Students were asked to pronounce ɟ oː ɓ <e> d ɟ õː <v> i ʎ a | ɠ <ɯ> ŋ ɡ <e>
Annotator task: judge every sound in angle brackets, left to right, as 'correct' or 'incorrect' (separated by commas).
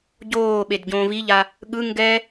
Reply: correct, correct, correct, incorrect